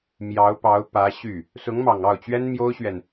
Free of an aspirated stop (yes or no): yes